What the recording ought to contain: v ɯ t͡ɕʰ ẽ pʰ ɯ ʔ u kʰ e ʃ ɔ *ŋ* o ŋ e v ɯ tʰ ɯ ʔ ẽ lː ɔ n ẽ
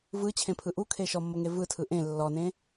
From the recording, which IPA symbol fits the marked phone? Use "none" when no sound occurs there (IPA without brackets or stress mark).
mː